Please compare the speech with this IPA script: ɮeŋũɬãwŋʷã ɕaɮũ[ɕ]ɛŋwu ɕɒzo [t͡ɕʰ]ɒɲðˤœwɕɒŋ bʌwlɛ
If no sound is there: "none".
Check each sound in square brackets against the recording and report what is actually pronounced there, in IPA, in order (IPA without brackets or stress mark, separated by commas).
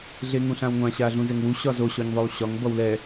z, ɕ